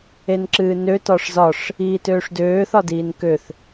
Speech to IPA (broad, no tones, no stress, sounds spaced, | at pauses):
e n ǁ ɨː n ø t ɒ ʂ z ɒ ʂ | iː t øː ʂ d øː θ ɒ d iː n k ø θ